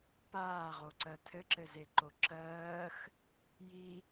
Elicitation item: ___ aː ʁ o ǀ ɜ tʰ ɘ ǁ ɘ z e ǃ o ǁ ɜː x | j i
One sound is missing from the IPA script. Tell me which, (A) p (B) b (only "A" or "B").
A